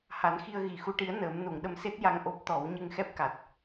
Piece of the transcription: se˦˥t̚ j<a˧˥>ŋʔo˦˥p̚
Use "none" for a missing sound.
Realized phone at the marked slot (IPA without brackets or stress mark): a˧